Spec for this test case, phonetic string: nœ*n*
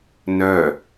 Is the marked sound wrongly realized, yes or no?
yes